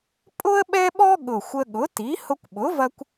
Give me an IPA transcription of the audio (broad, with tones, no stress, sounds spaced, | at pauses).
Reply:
pʼ ʊ˥ ə̯ ɓ ɛ˥ ɓ ɔ˥ ɠ ʊ˨˩ xʷ ə˧ ɠ ʊ˩˥ t i˩˥ h ʊ˧ kʷ ɓ ʊ˩˥ v ɐ˧ kʷ